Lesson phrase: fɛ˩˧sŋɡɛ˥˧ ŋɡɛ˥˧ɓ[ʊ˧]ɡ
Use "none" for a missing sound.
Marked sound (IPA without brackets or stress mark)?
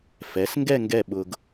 ʊ˧